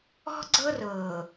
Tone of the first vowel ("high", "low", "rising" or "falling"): high